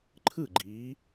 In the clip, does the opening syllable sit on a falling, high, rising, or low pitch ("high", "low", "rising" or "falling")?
falling